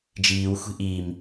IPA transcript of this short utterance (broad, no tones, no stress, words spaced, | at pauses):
d͡ʒiːwxʷi̤ ʔim